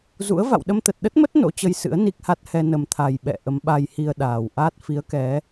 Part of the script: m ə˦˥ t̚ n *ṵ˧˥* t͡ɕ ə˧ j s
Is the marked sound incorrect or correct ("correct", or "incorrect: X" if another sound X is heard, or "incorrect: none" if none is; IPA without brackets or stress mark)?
incorrect: o̰˧˥